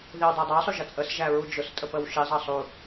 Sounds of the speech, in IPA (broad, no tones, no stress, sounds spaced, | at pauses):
ð i w dˤ ə˞ dˤ ɑ sˤ u ʒ ʌ t͡sʼ ə s ʒ æ ɹ u d͡ʒ ʊ s tʼ ə p ə w ʃ i zˤ ɑ sˤ u